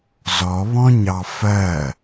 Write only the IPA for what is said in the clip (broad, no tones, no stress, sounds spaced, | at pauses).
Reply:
z ɔ β ɔ̃ ɲ ɑ f ɜ